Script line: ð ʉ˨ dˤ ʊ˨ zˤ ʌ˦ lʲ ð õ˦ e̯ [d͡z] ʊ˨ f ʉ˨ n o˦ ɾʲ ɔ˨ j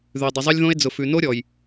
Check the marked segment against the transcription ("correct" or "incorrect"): correct